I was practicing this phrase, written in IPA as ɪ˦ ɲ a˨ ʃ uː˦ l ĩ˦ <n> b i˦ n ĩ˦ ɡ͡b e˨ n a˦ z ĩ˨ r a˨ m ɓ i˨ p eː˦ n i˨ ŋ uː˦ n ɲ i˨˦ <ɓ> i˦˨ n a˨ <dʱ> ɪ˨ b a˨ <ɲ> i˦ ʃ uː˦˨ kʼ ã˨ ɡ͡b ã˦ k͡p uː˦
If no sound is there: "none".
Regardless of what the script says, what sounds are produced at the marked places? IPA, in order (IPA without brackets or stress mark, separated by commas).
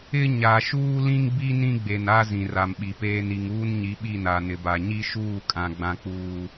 ŋ, ɓ, n, ɲ